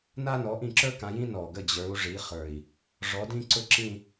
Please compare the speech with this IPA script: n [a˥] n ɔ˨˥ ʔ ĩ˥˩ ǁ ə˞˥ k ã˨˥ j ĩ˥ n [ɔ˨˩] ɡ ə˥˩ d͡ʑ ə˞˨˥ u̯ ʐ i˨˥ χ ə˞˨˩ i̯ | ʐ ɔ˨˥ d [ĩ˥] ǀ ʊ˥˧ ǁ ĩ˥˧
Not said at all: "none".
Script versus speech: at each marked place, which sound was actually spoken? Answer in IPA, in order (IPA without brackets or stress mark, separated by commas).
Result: a˥, ɔ˨˩, ĩ˥